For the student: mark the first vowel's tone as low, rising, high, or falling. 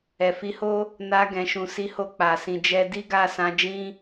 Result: low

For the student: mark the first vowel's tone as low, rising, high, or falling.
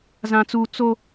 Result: high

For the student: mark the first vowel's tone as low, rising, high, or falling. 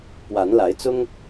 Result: rising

